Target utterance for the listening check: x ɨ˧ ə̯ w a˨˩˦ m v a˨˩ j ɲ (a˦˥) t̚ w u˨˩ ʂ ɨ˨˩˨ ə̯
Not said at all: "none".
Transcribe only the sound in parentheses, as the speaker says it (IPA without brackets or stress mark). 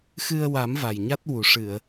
a˦˥